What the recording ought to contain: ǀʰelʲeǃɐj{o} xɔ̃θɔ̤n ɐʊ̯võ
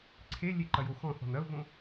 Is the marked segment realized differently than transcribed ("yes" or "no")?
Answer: no